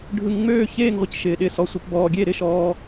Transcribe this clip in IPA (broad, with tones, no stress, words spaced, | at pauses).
ɖʱɯ˧ŋŋ͡møː˥˧çeː˥˧ŋ ʁʷɪ˥˧cʃɪː˧ɗɪ˥˧ sɔ˧sʷi˧pbɔː˧ ɡʲe˥˧ɾɪ˥˧ʃɔː˧